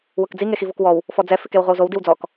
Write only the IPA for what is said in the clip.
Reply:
wʊkd͡zi ŋexivokwɔw | fɔd͡zɛ fɪkewʁʷɪwzow diwd͡zɔk

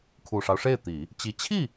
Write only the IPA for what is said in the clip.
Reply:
kʰu˨˩ʂɑ˦ʊ̯ʂe˥˩ɪ̯t̪i˨˩˦ | t͡ɕi˧˥ t͡ɕʰi˥˩

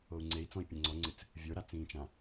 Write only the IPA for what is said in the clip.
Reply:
ou̯ŋ͡ǀei̯t͡sɔ̃i̯ pʲə̃ŋ͡ǀɔŋ͡ǀɨt͡s | vʲə˞ɾat͡sĩːt͡ʃã

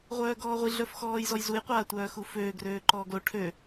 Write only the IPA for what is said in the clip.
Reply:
ʁʷœːɡɔːʁʷi ɮœfxɔːjzɔjzuj qʷaːtʷœːxuføː ɡrøːǃɔːɡlo ʈʰø

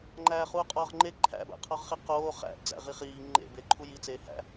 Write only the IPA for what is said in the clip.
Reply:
ŋ͡ǃæːχuːqʼɒːʁŋ͡ǃe ǃʰæ̰bæ̰qʰɒʁχi qoː χæ̰b d͡zæ̰ʁiχiː ŋ͡ǃḛbe ǃʰujit͡seː hæ̰

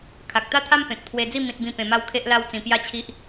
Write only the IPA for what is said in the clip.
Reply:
kʰa˨k̚t̪a˥˧t̪ʰa˦m pẽ˨k̚t̪ʰwe˧d͡zi˥˧ mĩ˦t̚bĩ˥˧ pẽ˧ma˥˧wkʰe˦ʔ la˦wt͡sĩ˧ pja˥˧t͡ɕʰi˦ʔ

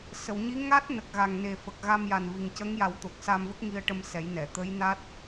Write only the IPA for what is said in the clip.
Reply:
sə˨˩˨wɲi˧˥ ŋa˦˥t̚nə˨˩k̚ ɣa˨˩ŋne˨˩ fə˨˩k̚ɣa˧mja˨˩n vi˨˩ŋcə˧˥ŋja˨˩˦wt̪o˨˩k̚ sa˧mvə˦˥k̚ŋi˧ə̯ʈə˧m sɛ˨˩˦jnɛ˨˩˨ t̪ə˧˥jna˦˥t̚

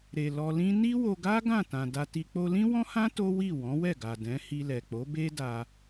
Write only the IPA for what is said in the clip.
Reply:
ɾe˨lɔ˧lĩ˦ ni˦wo˧ ɡa˦ ɡã˦˨tã˨da˧ti˧ k͡po˧lĩ˦wɔ̃˦hã˦ to˦wi˦˨ wɔ̃˨˦wɛ˦˨ ɡa˨dɛ̃˨˦ hi˧lɛ˨k͡po˨˦ be˦da˧

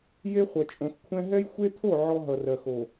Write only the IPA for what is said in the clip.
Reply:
je˦χʷʌ˨t͡ʃʼõ˨xkʷʰɛ̃˦ ɦɛ˦jxʷe˦t̪ʰo˦˨ ʕɔ˦ɦʌ˨rɜ˨xo˨

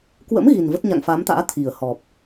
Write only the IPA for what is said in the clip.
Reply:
kwə̰˧˥m ɣi˨˩nvə˦˥t̚ ɲa̰˧˨ŋfa˨˦mt̪a̰ː˧˥ t̪ʰi˨˩ə̯hɔ˨˩p̚

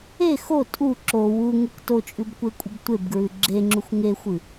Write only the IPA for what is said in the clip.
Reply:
e xo tʼu ǁo wuŋek tot͡ʃʼʉbkʷekʷʼɨb tʷebɡɹʉ ɡ͡ǁeŋ͡ǁuxʷ ŋexʷɨ

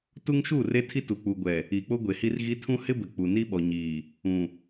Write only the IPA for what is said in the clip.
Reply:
tu˦ŋʃu˦˨ re˦tʰi˦tu˨ k͡pu˨ɡʷɛ˨ | i˨k͡po˦ɡʷe˨ hi˦rɣi˦ tʰũ˦ hɪ˦bɪ˨ k͡pu˨ni˦ɓɔ˨ɲiː˨ | ũ˨

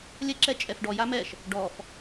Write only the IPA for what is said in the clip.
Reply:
lʲɛǁɛ t͡ʃʼɛfɖɔ jamɛʃ | ɖɔf

